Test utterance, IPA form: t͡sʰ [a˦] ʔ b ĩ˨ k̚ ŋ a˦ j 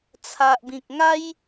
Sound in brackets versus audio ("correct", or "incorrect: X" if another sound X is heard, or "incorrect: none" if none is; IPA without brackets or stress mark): incorrect: a˨